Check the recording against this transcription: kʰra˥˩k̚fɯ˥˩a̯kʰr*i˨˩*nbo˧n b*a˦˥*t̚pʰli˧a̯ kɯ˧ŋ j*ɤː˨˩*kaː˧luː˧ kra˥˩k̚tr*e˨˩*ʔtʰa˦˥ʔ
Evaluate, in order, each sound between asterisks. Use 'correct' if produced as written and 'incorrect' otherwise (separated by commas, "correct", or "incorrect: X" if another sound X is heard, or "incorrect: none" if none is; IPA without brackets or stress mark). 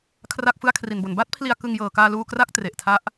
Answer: incorrect: i˧, incorrect: a˥˩, correct, correct